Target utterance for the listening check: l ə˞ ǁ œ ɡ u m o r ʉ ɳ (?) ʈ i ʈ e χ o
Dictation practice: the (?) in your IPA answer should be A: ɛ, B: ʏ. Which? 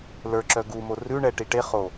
A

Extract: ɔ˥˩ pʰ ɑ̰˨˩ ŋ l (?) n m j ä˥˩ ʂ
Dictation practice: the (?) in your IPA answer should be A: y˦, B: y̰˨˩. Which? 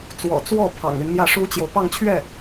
A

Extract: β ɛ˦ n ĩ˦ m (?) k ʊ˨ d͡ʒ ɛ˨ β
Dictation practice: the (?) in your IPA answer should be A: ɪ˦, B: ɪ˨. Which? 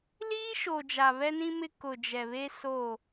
A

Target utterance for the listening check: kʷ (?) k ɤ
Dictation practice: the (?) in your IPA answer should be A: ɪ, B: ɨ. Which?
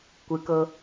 B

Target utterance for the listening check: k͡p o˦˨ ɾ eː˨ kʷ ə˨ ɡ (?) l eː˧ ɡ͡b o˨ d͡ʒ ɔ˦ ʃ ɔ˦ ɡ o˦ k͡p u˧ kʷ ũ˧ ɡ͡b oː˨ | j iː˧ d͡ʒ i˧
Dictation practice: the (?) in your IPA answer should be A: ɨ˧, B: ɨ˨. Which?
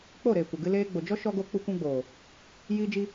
A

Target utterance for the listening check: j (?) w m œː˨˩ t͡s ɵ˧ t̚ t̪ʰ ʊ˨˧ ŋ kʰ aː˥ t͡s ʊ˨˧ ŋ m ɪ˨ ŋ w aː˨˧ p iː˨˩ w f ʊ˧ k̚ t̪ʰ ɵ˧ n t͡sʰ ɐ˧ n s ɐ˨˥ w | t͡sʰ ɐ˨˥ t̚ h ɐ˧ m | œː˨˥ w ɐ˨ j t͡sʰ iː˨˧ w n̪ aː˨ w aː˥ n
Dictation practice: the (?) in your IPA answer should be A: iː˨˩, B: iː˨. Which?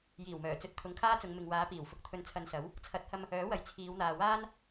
A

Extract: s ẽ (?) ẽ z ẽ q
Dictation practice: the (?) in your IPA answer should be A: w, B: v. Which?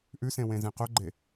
A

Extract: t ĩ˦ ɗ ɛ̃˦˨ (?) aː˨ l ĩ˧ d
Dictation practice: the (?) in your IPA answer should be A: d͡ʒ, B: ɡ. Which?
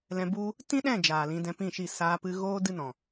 A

